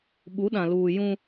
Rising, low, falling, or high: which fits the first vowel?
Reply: rising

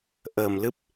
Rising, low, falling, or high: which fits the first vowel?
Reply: low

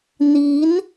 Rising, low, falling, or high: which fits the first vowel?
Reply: rising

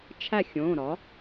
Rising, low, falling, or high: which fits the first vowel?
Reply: falling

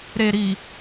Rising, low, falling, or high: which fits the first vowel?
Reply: low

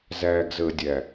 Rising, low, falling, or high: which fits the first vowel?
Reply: low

